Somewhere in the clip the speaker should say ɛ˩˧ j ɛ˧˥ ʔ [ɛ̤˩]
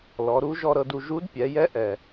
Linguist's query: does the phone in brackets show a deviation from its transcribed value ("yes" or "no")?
yes